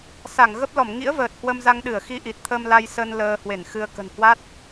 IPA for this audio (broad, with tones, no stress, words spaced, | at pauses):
sa˧˩ŋɣə˦˥p̚ lɔ˧˩mŋḭ˧˥ə̯vəː˨˩t̚ hwə˧mza˧ŋɗɨ˧˩ə̯ xi˧ʔi˨˩t̚t̪ʰə˧m la˧jsə˧n ləː˧hwe˧˩nxɨ˧ə̯ kə̤˨˩nhwa˦˥t̚